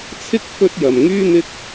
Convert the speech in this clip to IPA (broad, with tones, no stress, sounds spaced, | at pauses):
t͡sʰ ɪ˥ k̚ f ɵ˥ t̚ j ɐ˨ m ŋ yː˥ n̪ ɪ˥ k̚